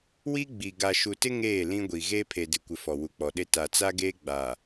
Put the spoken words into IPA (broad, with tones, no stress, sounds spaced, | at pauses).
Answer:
w i˦ ɡ͡b i˨ ɡ a˨ ʃ u˨ t ɪ˦ ŋ eː˦˨ l ĩ˦ ɡʷ i˨ ɣ e˦ pʰ e˨ d ɪ˨ kʷ ɪ˨ f ɔ˨ w u˨ k͡p ɔ˨ ɗ e˦ t a˨ t͡s a˦ ɡ eː˦ ɡ͡b a˨